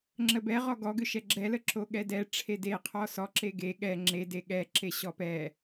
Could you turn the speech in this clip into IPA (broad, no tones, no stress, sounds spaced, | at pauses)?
ŋ͡ǁ ə b ɛ ʁ ɔ ɡ ɔ ɡ ʏ ʃ ɛ ɡ͡ǁ ɛ l ə ǁ o ɠ ɛ d ɛ ʈ͡ʂʰ e d e qʰ ɔ s ɔ ǁ e ɡ e ɠ ɛ ŋ͡ǁ e d e ɠ ɛ ǁ e ɕ ɔ p ɛ